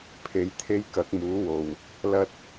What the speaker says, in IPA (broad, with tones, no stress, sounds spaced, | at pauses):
pʰ e˧ j t̪ʰ e˥ j k ɐ˨˥ k̚ m uː˨˥ w o˨ w | l ɐ˥ t̚